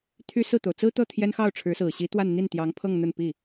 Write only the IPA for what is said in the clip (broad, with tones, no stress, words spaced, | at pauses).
t̪ʰy˥sɹ̩˥˩t̪o˩ʊ̯ t͡sɹ̩˥t̪ɤ˥˩ t̪ʰjɛ˥nxɑ˥˩ʊ̯ʈ͡ʂʰɻ̩˧˥sɹ̩˨˩ ɕi˧˥t̪wa˥˧n n̪i˥˩nt̪jɑ˧˥ŋpʰɤ˥˧ŋ n̪ə˥˧npi˥˩